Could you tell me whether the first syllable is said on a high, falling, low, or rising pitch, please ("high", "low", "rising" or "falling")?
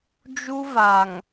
high